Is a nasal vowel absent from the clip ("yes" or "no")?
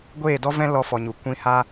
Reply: no